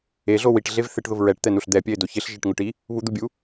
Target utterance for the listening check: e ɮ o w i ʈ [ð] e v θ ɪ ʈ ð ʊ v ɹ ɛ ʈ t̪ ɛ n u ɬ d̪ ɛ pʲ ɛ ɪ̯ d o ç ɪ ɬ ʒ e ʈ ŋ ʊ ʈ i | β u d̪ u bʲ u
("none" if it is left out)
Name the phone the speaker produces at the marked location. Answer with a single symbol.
ɮ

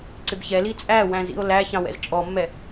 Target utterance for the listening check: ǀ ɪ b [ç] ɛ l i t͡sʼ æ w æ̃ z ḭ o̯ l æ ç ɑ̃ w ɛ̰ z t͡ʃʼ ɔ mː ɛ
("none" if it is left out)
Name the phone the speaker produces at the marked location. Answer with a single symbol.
ç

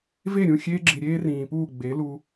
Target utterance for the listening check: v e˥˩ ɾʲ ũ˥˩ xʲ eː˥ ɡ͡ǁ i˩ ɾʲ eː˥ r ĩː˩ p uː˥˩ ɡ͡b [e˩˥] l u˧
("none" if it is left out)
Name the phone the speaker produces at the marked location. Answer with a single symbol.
e˩˥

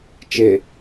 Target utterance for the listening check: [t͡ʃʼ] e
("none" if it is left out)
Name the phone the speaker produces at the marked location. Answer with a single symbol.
t͡ʃ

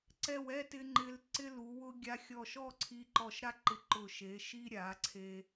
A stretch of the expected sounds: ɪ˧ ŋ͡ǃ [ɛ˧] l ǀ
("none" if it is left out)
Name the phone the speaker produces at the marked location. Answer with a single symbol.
ɪ˧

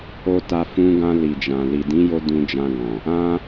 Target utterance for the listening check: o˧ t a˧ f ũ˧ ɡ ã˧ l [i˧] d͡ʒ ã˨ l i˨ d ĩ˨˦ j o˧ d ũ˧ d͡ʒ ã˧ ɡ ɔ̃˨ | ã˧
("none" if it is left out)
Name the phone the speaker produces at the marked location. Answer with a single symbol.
i˨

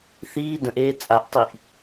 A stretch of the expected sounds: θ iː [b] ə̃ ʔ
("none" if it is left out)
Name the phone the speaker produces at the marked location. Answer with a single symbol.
d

